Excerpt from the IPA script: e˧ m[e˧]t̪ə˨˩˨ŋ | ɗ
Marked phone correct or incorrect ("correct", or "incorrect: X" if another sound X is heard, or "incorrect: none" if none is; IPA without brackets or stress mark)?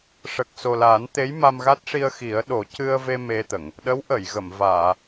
correct